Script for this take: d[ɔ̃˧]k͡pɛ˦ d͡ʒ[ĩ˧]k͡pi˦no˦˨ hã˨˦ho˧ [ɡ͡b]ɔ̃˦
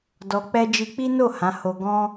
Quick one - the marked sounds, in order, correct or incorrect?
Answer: incorrect, incorrect, incorrect

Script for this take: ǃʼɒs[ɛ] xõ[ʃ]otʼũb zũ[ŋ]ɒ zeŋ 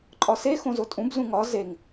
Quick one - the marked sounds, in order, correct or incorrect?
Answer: incorrect, incorrect, correct

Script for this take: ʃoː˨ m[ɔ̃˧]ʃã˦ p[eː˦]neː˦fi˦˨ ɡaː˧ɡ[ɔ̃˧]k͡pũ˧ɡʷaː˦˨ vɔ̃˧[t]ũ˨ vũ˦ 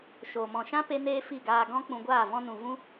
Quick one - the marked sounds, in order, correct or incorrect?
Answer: incorrect, incorrect, incorrect, incorrect

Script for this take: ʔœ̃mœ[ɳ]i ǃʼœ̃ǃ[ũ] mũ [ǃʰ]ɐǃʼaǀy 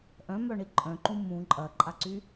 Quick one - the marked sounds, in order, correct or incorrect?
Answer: correct, correct, incorrect

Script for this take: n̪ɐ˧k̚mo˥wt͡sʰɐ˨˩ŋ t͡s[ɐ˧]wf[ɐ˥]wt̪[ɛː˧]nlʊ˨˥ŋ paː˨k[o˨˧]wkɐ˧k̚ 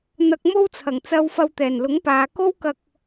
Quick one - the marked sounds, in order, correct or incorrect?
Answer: correct, incorrect, incorrect, incorrect

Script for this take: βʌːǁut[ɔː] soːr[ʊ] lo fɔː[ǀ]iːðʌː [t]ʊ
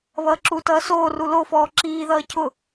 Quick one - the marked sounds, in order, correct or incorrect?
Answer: incorrect, incorrect, incorrect, incorrect

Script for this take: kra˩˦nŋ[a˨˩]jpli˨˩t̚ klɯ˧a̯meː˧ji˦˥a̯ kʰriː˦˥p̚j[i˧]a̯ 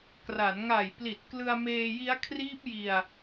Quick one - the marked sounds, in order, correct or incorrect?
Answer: correct, correct

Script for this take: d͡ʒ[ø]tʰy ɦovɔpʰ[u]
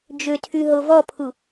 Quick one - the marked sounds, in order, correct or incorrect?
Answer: correct, correct

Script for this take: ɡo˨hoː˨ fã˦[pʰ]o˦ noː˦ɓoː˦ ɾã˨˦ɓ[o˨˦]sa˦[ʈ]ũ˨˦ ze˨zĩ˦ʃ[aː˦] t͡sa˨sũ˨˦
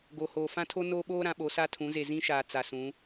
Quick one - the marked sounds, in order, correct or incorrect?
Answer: incorrect, correct, incorrect, incorrect

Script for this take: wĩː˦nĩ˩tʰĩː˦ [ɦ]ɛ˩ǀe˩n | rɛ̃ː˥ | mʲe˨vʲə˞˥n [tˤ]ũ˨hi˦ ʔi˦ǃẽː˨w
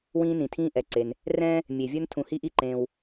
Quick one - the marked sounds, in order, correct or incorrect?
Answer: incorrect, incorrect

